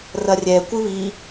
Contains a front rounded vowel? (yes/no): no